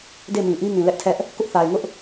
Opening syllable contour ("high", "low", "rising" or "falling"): falling